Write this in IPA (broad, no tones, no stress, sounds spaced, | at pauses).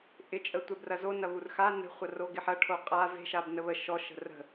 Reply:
ʔ ɪ t͡ʃʼ ə tʷ ɛ b r ɐ z o n ɐ β u r x a n ə̤ χʷ ɐ r o ɡ ɪ ħ ɐ ʈʰ o qʼ a v e̤ ʃ a b n ə β ə ʃ ɔ ʃ ə̤ r ə̤